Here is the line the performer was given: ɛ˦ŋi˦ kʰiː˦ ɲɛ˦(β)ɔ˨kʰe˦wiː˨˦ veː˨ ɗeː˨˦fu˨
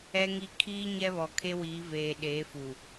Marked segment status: correct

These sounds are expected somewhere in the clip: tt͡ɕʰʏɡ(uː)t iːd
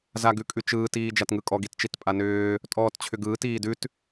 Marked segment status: incorrect: ɯː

